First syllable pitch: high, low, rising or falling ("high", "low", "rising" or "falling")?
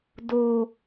low